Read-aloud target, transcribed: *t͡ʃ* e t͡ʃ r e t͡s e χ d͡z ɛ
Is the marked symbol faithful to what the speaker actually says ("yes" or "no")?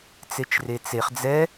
no